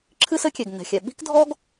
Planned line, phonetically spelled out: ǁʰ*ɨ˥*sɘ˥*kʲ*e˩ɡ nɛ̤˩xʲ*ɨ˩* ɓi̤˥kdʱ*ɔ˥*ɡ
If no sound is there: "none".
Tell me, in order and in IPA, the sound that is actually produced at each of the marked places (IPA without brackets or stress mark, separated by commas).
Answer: ɨ˥, kʲ, ɛ˩, ɔ˥